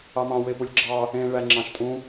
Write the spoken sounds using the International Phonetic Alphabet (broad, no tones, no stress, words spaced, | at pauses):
ɑmɑ̃ wepulʲɡ͡ǁɑ | ẽ ɭæŋ͡ǁɑ̃ʃtʼũ